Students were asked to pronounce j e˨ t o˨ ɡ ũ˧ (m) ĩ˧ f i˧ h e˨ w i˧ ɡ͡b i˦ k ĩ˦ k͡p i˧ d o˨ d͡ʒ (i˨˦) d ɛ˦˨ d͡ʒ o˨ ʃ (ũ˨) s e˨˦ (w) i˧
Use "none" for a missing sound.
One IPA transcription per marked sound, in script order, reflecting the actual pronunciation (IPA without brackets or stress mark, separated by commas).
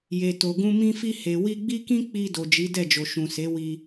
m, i˨˦, ũ˨, w